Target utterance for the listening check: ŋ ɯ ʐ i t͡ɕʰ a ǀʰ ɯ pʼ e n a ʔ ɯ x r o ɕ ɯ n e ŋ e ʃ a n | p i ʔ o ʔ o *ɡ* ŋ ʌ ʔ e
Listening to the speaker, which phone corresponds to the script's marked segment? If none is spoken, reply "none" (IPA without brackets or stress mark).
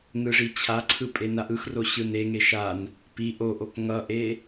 k